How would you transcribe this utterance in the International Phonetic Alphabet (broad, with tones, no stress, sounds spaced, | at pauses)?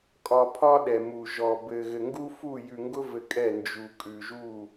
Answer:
kʼ ɒ˨ pʰ ɒ˦ ɗ ɛ˨ m u˨ ʒ ɔ˨ b ɘ˨ ɣ ɘ˨ ŋ ɡ u˦ f u˦˨ j ʉ˨ ŋ ɡ ʊ˦ v ɘ˨ kʼ ɛ˦˨ n d͡ʒ u˨ kʼ ʉ˨ ʒ u˦˨